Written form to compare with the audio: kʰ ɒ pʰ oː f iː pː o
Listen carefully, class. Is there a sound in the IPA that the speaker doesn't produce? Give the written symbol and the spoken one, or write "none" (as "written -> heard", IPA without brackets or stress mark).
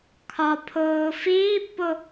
none